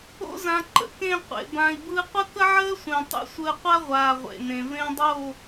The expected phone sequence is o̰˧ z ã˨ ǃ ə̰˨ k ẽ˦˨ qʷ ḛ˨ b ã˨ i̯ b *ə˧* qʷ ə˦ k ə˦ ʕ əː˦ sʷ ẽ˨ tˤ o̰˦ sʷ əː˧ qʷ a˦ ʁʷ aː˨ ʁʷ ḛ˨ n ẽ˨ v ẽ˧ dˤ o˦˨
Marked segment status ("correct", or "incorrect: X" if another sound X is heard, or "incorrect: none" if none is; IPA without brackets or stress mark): incorrect: ɯ˧